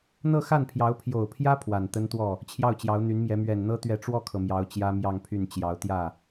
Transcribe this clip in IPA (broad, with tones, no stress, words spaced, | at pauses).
n̪ɤ˥˧xa˥˩npʰjɑ˧˥ʊ̯ pʰjo˨˩ʊ̯pʰjä˥ pʰwa˨˩nt̪ə˥nt̪wɔ˥˩ | t͡ɕʰjɑ˥˩ʊ̯t͡ɕjɑ˧˥ʊ̯n̪y˧˥nmjɛ˧˥ mɥɛ˨˩nn̪ɤ˥ t̪ɥɛ˧˥ʈ͡ʂwɔ˥˩kʰɤ˩ mjɑ˧˥ʊ̯t͡ɕjä˥mjɑ˥˧ŋpʰy˥˩n t͡ɕjɑ˧˥ʊ̯t̪jä˥˩